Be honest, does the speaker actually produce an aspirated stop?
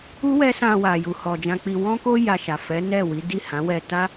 no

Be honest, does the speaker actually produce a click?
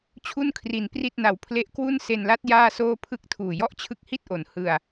no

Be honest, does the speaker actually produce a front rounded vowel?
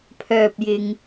yes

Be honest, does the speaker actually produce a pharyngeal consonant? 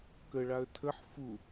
yes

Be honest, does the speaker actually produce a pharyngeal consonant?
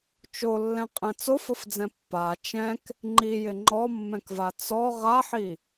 yes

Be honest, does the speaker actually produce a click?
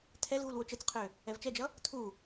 no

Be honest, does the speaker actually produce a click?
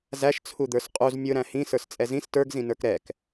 no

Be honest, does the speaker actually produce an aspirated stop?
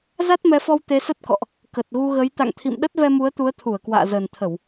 yes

